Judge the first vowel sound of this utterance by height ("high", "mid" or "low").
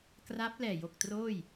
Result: low